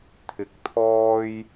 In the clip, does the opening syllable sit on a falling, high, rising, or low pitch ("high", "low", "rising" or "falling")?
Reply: rising